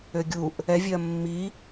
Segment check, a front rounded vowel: present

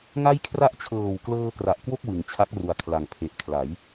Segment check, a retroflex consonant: absent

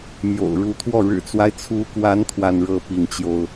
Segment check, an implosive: absent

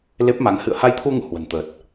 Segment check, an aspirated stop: present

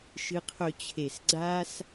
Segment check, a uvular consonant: present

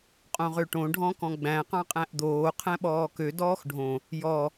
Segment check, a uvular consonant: present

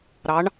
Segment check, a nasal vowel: absent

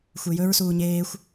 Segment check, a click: absent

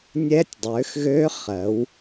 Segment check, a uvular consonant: present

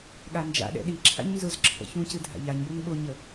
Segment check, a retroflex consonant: absent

